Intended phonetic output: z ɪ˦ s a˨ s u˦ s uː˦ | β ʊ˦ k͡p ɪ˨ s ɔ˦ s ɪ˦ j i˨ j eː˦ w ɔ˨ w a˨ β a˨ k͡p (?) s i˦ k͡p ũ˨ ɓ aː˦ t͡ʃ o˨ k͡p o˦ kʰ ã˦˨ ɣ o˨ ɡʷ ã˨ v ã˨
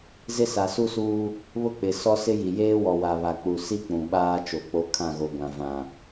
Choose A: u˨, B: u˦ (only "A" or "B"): A